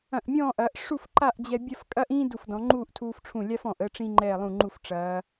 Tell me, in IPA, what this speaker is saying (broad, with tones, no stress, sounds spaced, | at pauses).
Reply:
ɐ̃˧˩ ʔ mʲ ɔ̃ː˥˧ ʔ ɐː˩˧ ʔ ʂ u˥˧ f ǃ a˥˧ ʔ d͡ʑ ɛ˧ bʲ ɐ˥˧ f kʼ ɐ˥ ʔ ĩː˥ d u˧˩ f d ɔ̃˩˧ ŋ͡ǃ uː˥˧ ʔ tʰ uː˧ f ʈ͡ʂʰ ũ˧˩ lʲ a˥ f ɔ̃˧˩ ʔ ə˧ ʈ͡ʂ ĩ˧ ŋ͡ǃ ɛː˧˩ lˠ ũ˧˩ ŋ͡ǃ u˧˩ f ʈ͡ʂ ɐː˩˧